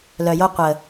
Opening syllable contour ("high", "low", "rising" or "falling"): low